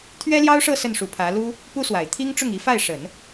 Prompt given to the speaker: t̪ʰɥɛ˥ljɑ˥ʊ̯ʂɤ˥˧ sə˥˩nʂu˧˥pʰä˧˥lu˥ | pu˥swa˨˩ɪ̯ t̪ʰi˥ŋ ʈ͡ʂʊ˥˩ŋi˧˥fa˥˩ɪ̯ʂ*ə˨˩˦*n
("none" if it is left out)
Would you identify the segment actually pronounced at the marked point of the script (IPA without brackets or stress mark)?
ə˨˩˦